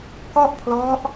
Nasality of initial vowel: oral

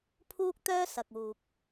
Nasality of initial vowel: oral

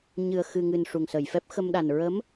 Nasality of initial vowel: oral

